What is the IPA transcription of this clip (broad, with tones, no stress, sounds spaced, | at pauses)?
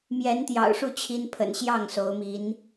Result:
m j ɛ˧˥ n t̪ j ɑ̰˨˩ ʊ̯ ʂ u˥˩ t͡ɕʰ i˥ n pʰ ə̰˨˩ n ɕ j ɑ˥˩ ŋ s o˧˥ ʊ̯ m i˧˥ n